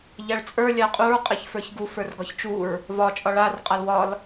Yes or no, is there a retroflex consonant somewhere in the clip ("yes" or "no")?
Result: yes